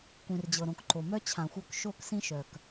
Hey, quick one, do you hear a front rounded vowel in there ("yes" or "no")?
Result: yes